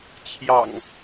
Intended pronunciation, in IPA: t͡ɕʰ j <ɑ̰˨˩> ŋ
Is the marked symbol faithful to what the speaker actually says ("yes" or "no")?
yes